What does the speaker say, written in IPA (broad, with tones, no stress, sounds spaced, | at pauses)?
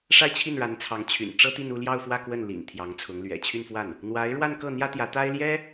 ʂ a˥˧ ɪ̯ t͡ɕʰ i˥˩ n ɻ a˧˥ n t͡sʰ ɑ˧˥ ŋ t͡ɕʰ y̰˨˩ n ʈ͡ʂ ɤ˥ t̪ i˥˧ n u˥˧ l j ɑ˥˧ ʊ̯ f w ä˥˧ k w ə˥˩ n l ḭ˨˩ n t̪ʰ j ɑ˧˥ ŋ t͡sʰ ʊ˧˥ ŋ l ɥ ɛ̰˨˩ t͡ɕʰ y˥˧ n f w a˥˩ n | n̪ w a˧˥ ɪ̯ ɻ w a˥˧ n k ɤ˥˩ n̪ j ä˥ t̪ j ä˧˥ t̪ a˥ ɪ̯ l j ɛ˥